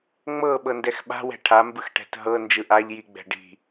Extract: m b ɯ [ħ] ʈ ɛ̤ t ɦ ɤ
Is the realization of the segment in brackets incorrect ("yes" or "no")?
yes